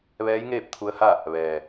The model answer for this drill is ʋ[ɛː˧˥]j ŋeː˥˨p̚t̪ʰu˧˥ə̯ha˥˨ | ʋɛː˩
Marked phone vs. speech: correct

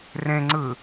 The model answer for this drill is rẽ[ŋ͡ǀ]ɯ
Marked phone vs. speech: correct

